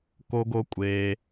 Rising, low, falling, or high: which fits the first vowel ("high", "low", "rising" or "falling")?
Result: high